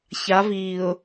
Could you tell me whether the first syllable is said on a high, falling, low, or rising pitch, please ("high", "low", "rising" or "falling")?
rising